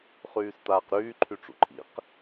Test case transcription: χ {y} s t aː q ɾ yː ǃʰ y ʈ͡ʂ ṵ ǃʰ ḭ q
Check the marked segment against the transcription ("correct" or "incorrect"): incorrect